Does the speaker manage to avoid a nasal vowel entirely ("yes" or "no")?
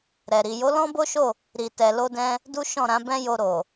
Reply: no